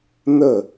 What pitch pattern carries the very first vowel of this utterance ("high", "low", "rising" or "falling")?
falling